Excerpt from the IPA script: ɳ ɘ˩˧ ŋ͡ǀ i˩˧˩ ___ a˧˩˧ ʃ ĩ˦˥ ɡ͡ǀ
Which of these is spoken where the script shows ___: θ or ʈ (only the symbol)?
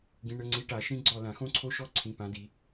ʈ